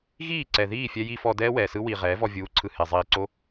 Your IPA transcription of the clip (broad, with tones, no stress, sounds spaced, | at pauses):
ɣ iː˦˨ ǀ ɛ˨ ð iː˦˨ fʲ ɛ˧ j i˧ f ɔ˧ d ɛː˦ w ɛː˨ s ɯ˦ w i˨ ʁ ɛː˨˦ v ɔ˧ vʲ uː˨˦ ǀʰ ɯ˨ h e˨ zˤ iː˧ ǀ o˦